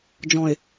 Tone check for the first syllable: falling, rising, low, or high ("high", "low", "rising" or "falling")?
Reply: low